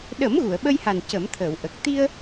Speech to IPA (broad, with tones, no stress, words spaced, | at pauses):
ɗə˨˩˦m ɣu˨˩˨ə̯ɓə˧jha˨˩n cə˨˩˦mt̪ʰəː˨˩˨wʔə˨˩k̚ t̪i˧ə̯